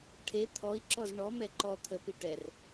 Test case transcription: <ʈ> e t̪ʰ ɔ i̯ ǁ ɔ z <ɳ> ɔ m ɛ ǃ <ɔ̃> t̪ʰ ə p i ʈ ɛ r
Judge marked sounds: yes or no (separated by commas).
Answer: no, yes, no